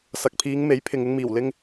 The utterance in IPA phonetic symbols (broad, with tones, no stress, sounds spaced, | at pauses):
s ɐ˨ k̚ pʰ iː˨˧ ŋ m e˨˥ j pʰ ɪ˨ ŋ ɪ˧ ŋ m iː˨˩ w l ɪ˧ ŋ